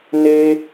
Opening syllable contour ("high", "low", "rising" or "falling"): high